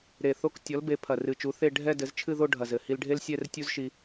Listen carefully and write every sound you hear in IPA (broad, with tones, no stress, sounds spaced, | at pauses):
ɾ e˨˩ θ o˥ k tʲ ɔ˨˥ l b e˨˥ pʰ ɐ˨˩ r ɨ˨˩ t͡ʃ u˨˥ θ e˥˧ ɖʱ ɛ˥˧ d ɘ˨˥ z t͡ʃʰ ɨ˥˧ ð o˥˧ ɖʱ ɐ˨˩ z ɘ˨˩ h i˧ l ɖʱ e˥ l sʲ ɛ˥˧ r tʲ u˥ z ʃ i˧